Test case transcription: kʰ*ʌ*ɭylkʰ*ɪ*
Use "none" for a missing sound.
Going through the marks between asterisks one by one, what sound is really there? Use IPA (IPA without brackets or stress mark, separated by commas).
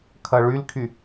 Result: ʌ, y